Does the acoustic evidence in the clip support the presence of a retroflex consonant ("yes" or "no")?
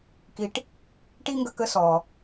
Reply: yes